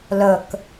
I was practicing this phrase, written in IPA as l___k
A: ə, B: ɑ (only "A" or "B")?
A